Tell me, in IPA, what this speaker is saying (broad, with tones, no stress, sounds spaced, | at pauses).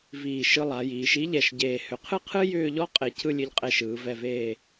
v iː˧˩ ʃ ɯ˧ lˠ a˩˧ j iː˩˧ ʃ i˥ ʎ ɛ˧˩ ʃ ɟ eː˧˩ h ʏ˩˧ qʰ ɨ˥ qʰ ɨ˥ j ʏː˥˧ ʎ ɔ˥ qʼ e˧˩ cʰ ɯ˥˧ lʲ ɨ˧ ʎ qʼ e˧ ʃ ɯː˩˧ v ɛ˧˩ v eː˧˩